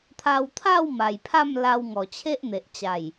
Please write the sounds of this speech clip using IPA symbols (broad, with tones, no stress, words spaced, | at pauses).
t̪ʰa˧wt̪ʰa˥˧w ma˨˩jpʰa˥˧mla˧w ŋɔ˨˩t͡ɕʰe˦ʔn̪e˨ʔt͡ɕa˨˩j